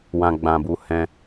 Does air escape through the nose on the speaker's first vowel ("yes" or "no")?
yes